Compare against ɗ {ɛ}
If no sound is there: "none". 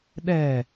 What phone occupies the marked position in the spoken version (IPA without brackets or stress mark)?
ɛ